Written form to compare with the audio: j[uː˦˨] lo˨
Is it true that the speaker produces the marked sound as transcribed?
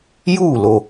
yes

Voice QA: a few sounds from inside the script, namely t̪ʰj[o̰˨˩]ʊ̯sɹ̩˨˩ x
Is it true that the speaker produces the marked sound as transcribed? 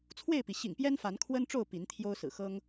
no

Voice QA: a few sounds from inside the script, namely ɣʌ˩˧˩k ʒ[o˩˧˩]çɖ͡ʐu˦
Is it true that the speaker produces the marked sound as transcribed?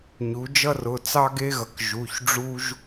no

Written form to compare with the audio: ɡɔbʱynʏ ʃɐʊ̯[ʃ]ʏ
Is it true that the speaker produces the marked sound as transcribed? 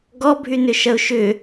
yes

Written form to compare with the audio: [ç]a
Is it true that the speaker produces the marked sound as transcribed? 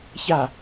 yes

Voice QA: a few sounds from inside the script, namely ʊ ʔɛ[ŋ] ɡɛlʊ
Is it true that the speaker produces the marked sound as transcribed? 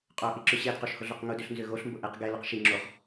no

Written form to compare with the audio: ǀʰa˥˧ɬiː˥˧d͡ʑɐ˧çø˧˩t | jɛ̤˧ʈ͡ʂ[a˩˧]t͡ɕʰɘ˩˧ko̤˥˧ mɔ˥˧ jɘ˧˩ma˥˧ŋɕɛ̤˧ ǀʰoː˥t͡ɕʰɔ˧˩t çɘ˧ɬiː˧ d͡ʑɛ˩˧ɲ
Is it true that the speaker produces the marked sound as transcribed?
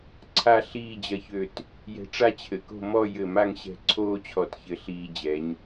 no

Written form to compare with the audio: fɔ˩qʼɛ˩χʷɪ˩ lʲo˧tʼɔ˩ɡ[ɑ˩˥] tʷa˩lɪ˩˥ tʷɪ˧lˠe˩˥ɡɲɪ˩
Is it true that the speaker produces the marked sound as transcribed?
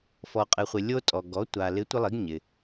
no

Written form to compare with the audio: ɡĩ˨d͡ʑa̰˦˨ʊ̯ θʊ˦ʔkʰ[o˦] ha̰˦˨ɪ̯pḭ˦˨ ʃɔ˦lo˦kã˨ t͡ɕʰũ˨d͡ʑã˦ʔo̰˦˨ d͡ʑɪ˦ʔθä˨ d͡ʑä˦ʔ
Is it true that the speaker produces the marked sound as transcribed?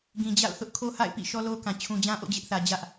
yes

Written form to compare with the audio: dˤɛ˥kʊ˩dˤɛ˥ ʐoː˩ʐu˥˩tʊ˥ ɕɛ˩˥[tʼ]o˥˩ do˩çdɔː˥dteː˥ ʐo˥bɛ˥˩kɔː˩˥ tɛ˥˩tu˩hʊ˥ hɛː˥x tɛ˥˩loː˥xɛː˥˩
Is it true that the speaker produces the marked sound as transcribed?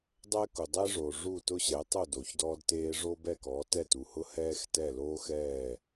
no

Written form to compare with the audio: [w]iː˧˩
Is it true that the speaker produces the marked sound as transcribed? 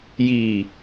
no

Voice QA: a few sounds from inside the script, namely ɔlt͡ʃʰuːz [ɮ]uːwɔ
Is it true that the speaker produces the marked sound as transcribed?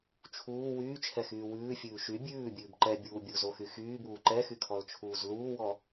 no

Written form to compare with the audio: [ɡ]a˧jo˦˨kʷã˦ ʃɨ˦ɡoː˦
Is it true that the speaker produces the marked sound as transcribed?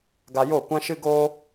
yes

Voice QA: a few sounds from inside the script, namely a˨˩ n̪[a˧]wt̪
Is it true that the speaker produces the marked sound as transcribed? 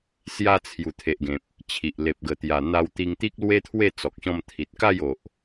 yes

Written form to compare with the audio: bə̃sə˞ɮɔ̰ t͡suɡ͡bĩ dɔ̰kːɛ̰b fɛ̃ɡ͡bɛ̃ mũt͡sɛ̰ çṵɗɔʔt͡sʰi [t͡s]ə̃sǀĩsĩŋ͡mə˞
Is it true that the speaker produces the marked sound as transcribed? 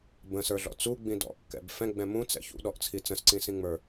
yes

